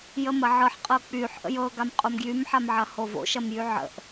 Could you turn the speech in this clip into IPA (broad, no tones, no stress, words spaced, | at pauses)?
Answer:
jəmɐʕɤħqʼɤ k͡pyħ ʔə̰jɤɡam qʼomɡjymħamʕɐ hovo̰ʃɐmjy ʕə̰ʔ